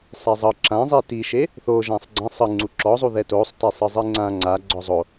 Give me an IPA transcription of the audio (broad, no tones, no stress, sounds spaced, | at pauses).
sˤ ɛ zˤ ɤ ǁ ã zˤ i t i ʃ e | θ o ʒ ã sˤ ɡ͡ǀ ã sˤ ɯ ŋ͡ǀ u ǁ ɔ zˤ u ð ɛ t o sˤ t e sˤ ɯ zˤ i ŋ͡ǀ ã ŋ͡ǀ a ɡ͡ǀ ɔ zˤ o